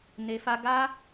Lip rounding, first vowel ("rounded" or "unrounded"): unrounded